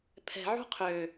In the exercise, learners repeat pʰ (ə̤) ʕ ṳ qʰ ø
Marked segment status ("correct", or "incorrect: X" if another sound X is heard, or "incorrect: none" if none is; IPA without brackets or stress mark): incorrect: ɛ̤